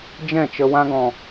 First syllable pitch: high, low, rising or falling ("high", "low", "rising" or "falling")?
falling